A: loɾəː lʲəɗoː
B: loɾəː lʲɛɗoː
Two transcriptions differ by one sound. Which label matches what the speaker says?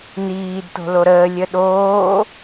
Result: A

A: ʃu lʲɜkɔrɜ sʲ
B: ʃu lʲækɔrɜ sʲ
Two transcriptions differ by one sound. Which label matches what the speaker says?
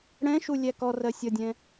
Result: B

